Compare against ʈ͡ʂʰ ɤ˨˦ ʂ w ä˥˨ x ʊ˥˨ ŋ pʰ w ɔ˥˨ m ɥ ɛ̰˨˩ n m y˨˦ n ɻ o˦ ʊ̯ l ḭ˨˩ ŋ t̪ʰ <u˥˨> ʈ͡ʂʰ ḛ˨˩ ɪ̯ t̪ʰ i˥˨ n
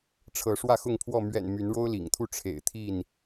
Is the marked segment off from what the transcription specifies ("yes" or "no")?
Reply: no